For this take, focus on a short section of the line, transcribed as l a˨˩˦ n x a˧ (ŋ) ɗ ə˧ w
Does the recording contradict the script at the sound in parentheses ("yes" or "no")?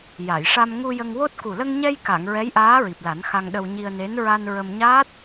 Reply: no